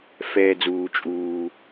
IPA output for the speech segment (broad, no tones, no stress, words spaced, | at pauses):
fɛːd͡zuː t͡ʃʼuː